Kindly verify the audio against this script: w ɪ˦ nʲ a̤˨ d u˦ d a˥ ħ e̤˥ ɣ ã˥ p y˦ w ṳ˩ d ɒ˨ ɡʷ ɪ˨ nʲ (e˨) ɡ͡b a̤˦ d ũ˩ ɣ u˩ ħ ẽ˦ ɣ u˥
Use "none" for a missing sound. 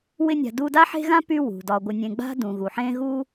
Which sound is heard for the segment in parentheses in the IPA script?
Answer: ẽ˨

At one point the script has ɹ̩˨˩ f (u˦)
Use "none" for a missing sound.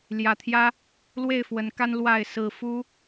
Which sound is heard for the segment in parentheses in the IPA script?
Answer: u˦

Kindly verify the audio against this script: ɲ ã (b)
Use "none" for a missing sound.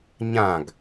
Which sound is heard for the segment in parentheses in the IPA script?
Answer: ɡ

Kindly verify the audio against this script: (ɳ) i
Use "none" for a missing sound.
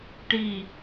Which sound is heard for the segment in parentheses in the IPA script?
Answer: ʈ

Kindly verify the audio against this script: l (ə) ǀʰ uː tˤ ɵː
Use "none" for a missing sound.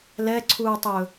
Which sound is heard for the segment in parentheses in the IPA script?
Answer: ɛ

